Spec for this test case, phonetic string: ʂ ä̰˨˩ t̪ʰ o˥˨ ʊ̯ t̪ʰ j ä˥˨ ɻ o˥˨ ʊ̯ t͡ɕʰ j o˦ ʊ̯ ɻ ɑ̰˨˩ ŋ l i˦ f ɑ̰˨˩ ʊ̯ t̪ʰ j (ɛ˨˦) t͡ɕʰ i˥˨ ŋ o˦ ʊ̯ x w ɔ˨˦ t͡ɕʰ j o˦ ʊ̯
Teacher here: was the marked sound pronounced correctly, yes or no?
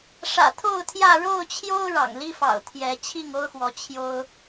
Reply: yes